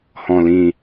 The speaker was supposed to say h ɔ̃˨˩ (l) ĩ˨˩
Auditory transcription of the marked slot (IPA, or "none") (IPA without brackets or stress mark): l